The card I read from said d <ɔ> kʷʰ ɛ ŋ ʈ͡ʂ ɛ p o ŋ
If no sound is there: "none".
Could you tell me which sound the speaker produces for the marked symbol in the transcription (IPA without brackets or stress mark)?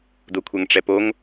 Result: o